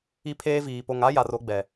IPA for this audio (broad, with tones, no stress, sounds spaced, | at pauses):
i˦ pʰ eː˦ v iː˨ p o˨ ŋ a˦ j a˨ r o˦ ɡ͡b ɛ˨